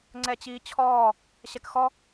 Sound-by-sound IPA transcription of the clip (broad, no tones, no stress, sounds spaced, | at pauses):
ŋ͡ǀ ɛ t͡ɕ iː t͡ɕʰ ɔː | ɕ ɛ k x ɔ